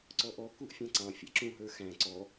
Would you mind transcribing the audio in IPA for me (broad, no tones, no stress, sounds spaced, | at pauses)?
ǀ ɔ ʔ ɔ k u ʔ fʲ ɑ̃ ǀ ɑ̃ fʲ æ̰ ǁ ũ ɦ ə˞ x æ̃ ǀ ɔ